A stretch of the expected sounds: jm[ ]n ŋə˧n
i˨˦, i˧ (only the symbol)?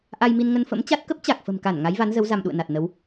i˧